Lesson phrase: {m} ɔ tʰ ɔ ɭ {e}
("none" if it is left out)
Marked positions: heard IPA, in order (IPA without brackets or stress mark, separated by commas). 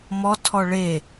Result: m, e